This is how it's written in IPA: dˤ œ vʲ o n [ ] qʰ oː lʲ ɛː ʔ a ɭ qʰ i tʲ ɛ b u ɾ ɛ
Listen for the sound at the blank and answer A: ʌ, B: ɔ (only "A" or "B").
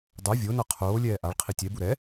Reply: A